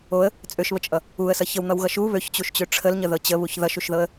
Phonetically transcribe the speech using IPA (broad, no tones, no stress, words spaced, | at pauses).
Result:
oə̯ | t͡sʼøʃβət͡ʃʼʌ | uə̯sʌ çəwn̪ʌwɣʌ ʃu βøçt͡ɕuʃt͡ɕø ʈ͡ʂʰəlɲəðɤ t͡ɕəβuç ðʌʃuʃðɤə̯